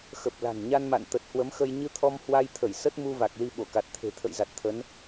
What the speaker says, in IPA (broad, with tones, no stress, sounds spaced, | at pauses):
x ə˨˩ p̚ l a̤˨˩ n ɲ a˧ n m a̰˧˨ n t̪ ə˨˩ t̚ h w ə˨˦ m x ə˧ j ɲ ɨ˧ t̪ʰ ɔ˧ m h w a˧ j t̪ʰ ə˧˩ j s ə˦˥ t̚ m u˧ v a˨˩ k̚ l i˧ ɓ o˧˩ k a˨˩ t̚ t̪ʰ e̤˨˩ t̪ʰ ə̰˧˨ j z a˨˩ t̚ t̪ʰ ə˨˦ n